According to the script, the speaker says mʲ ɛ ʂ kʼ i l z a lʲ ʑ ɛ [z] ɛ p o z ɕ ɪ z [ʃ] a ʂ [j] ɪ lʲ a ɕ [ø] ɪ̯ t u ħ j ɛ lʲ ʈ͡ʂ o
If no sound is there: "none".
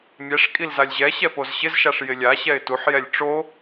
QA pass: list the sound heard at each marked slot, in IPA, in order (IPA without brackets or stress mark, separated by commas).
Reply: ɕ, ʃ, j, ɛ